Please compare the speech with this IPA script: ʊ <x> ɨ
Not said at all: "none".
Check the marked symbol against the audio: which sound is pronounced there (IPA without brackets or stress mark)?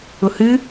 h